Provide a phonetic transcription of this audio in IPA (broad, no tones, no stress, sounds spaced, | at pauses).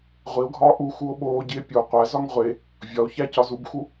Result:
ʁʷ i o̯ ɡʱ ɒː ʔ u x u o̯ ɓ oː ɟ i e̯ pʲ o qʷ æ z ɒ ŋ ʁʷ e | vʲ ɒ o̯ ç æ c ɒ z u b x u